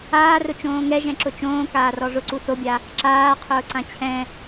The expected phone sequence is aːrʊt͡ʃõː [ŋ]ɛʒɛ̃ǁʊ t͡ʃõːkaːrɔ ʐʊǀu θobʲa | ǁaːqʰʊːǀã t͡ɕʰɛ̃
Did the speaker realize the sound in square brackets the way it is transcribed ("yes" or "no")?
yes